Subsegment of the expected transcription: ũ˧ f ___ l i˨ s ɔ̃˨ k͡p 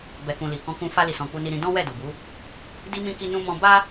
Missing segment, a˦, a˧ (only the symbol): a˧